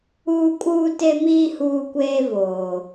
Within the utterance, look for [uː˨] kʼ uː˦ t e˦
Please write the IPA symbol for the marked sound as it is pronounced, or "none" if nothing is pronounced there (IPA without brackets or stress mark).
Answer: uː˦